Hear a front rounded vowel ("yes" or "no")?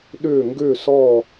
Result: yes